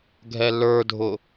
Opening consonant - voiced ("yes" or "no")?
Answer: yes